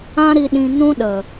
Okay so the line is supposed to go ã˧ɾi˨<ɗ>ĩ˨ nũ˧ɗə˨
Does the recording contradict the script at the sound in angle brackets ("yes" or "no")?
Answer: no